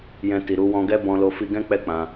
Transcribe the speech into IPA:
jɛ̃˧ti˨ɾu˧ wɔ̃˧ɡɛ˦ bɔ̃˧lo˧ fi˧ɡɛ̃˦ k͡pɛ˦k͡pã˧

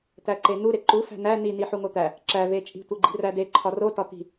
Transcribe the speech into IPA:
t̪æǃen̪u ɾeǃu fæ̤næ ni niħuŋot̪æ | ǁæ vet͡ʃʼi̤ tʷeɡ͡ǃi̤ræde ǃʰɒro tɒt̪i̤

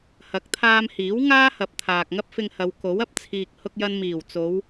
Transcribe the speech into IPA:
hɐ˨˥k̚t̪ʰaː˧mhiː˨˥w ŋaː˥hɐ˨p̚ t̪ʰaː˨k̚ŋɐ˥p̚fɪ˧ŋhɐ˨˧w ko˨˥wɐ˧p̚t͡sʰiː˨k̚ hʊ˧k̚jɐ˧n miː˨˩wt͡so˨˧w

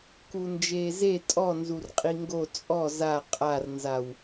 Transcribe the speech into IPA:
kund͡ʒeːze tʼɔnzur qʼiŋɡo t͡sʼɔ za qʼarnzaw

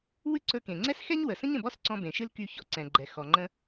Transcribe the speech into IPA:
wɨ˥ ǀɵ˧ kẽ˩ŋ͡ǀɛ˥sxɛ˥ɲ wə˩sə̃˥ɲ ə̃˩bɔ˥sǀɔ̃˧ bẽ˩ʃɨ˥l ky˧ çɔ̰˧ǀɛ̃˩ɡ͡ǃɛ˩ xɔ˩ŋ͡ǃə̃˧

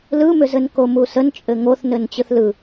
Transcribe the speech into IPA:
lɯmʏzɘn komusən t͡ʃʼɘŋoθnɘn t͡ɕɯθlɯ

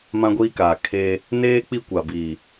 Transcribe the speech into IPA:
mã˦ɡʷiː˦kaː˨kʰeː˦ | neː˦ k͡pi˦kʷa˨ biː˨

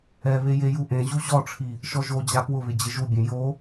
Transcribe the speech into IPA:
ɛβe jejuʔẽʑu ʑɔʈ͡ʂʰi | ʃɔʒod͡ʑa pwʊβɪ d͡ʑɪʒubʲẽ jo

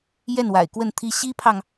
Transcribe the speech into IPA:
jɛ˥˩nwa̰˨˩ɪ̯kwə˥˩nt̪ʰi˥ ɕi˥pʰɑ˨ŋ

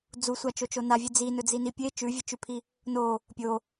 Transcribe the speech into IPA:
d͡zusʷat͡ʃot͡ʃo navʲʉ d͡zinɵd͡zini pʲe t͡ʃʉvʲɨt͡ʃʉpʰi | no | pʲo

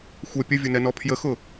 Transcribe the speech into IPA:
xʷɛ pʲəvʲʊnɛnɔ pʰjəxʊ

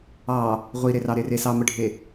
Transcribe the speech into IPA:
ɑ | ʁʷiɾerɑɾe resɑməɖʱe

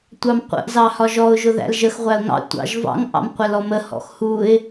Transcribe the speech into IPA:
tʷɑmqʷə̰ʔ zɑhɒʒɔʊ̯ ʒʊðæ̰lʒəx ʁʷæʊ̯ŋɑ̰ tʷɑ̰ʒvɑ̰ŋ ʔɑ̰mqʷælɔmə hɔ̰xhuɪ̯

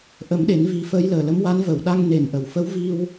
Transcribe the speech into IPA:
ʔə˨˩˦mɗe˨˩˦nvi˨˩˦fəː˧˥j ləː˨˩lə˧˥mwa˧˥n və˨˩˨wɗa˧ŋ ne˨˩nʔə˨˩˨wfə˧˥wvi˧w

